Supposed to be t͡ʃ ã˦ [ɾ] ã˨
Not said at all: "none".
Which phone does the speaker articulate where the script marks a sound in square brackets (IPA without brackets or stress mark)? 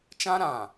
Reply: ɾ